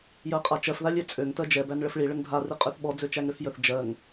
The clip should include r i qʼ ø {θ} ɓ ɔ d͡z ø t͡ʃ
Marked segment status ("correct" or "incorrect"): correct